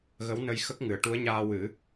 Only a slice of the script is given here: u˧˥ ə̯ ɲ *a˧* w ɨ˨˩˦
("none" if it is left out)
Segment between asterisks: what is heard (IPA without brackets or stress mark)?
aː˧